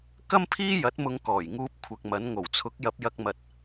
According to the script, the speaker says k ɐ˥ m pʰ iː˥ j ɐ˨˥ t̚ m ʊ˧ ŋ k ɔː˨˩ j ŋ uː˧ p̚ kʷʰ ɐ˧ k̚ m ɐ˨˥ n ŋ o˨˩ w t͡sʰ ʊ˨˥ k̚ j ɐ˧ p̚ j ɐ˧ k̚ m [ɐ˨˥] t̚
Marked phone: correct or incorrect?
incorrect